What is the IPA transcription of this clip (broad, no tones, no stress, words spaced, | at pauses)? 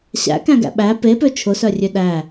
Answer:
ɕæ̰kæ̃ɡæ̰ ɓæ pepø t͡ʃʰʊsœrʲø ɗæ